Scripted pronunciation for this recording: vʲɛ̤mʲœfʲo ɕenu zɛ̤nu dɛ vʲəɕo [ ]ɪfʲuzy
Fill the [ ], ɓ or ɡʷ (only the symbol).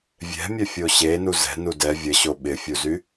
ɓ